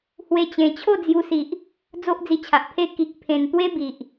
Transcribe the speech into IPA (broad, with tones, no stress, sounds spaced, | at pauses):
h w e˧ t͡ɕ ẽ˨˩ t͡ɕʰ o˥˧ d͡z j u˧ s i˨ ʔ | d͡z o˦ ʔ d͡z i˧ t͡ɕʰ a˨ ʔ pʰ e˥˧ k i˨ k̚ pʰ ẽ˨˩ n t̪ w e˦ b i˨ ʔ